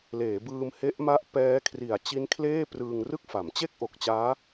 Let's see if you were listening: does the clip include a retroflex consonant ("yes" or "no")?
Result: no